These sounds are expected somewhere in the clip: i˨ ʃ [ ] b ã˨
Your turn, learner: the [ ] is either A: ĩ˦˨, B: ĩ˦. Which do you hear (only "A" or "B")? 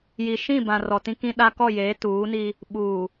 A